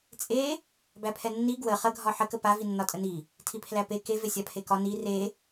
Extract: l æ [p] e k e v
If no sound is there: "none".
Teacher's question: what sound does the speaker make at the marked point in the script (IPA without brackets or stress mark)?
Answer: p